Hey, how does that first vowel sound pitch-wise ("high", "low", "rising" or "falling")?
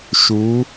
rising